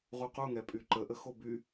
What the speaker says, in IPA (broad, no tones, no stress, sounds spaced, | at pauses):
ʁ u q u ŋ ɛ pʼ y ǃ ə ʔ ə x o b y